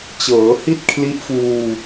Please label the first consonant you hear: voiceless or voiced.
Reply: voiceless